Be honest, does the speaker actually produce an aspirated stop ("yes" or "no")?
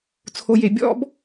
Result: yes